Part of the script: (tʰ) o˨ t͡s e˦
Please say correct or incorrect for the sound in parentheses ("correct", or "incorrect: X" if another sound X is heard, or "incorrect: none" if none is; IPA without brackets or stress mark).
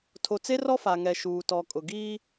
correct